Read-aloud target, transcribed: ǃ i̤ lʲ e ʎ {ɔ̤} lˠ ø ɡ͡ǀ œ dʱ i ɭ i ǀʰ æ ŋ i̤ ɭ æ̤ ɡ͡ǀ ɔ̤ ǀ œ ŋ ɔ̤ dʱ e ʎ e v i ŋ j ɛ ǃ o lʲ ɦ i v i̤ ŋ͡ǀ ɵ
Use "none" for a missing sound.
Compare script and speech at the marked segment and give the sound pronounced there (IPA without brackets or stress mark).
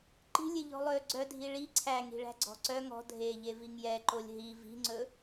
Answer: ɔ̤